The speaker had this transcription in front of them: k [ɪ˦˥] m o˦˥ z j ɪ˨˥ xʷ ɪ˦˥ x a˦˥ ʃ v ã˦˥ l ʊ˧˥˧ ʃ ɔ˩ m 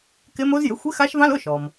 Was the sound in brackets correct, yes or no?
yes